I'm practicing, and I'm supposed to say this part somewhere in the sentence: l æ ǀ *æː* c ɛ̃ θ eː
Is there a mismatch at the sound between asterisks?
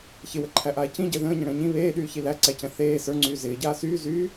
yes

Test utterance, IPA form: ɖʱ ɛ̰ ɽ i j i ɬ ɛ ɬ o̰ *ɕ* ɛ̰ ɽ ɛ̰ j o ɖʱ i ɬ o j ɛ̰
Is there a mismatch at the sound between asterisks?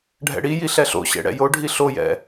no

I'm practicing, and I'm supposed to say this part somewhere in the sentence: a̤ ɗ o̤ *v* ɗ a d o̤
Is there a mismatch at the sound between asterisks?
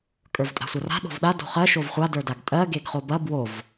no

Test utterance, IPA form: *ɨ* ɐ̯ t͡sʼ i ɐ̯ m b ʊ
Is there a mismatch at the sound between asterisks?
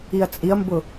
yes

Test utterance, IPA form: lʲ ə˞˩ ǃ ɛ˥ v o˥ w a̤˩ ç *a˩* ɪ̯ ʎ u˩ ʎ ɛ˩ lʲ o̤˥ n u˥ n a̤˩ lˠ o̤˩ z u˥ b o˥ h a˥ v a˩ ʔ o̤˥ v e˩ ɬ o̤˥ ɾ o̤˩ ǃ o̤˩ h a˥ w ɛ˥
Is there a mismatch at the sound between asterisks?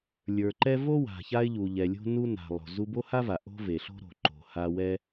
yes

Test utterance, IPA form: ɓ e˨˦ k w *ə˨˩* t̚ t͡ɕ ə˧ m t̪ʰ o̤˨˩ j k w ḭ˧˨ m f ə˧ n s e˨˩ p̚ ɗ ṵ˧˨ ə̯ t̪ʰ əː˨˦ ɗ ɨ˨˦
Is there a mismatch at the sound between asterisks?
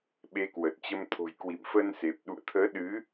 no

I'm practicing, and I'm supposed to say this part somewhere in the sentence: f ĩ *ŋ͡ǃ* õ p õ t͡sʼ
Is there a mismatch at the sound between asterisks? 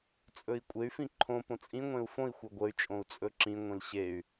yes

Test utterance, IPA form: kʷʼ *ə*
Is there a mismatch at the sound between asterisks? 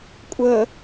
no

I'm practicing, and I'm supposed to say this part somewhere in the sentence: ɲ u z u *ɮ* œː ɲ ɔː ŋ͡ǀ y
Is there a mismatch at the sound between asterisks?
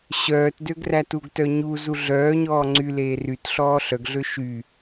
no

